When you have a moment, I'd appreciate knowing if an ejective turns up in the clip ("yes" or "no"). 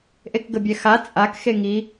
yes